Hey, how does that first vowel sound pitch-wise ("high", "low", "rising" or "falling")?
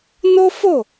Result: high